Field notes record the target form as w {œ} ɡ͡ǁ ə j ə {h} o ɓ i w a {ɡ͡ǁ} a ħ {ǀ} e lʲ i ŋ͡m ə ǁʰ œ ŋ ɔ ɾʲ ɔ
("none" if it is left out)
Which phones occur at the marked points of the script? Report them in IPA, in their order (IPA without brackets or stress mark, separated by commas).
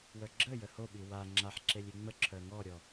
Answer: œ, h, ŋ͡ǁ, ǁ